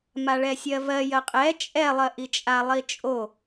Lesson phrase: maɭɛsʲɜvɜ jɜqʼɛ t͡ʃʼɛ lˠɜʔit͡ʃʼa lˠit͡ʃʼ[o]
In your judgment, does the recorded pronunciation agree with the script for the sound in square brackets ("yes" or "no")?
yes